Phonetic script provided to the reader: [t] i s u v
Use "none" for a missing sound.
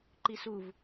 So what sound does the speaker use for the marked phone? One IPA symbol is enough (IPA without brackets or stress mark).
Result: ǃ